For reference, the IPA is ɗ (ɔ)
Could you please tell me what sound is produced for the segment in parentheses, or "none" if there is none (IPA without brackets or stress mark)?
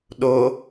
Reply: o